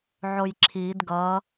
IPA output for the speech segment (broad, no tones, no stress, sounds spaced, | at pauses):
ʕ o j ǁʰ i d ɡ ʌ